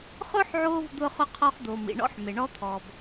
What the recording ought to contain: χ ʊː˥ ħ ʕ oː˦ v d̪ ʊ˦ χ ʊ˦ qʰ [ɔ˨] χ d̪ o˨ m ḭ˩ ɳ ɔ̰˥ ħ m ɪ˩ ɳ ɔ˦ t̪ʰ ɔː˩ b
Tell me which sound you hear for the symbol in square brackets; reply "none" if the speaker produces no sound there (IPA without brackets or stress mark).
ɔ˦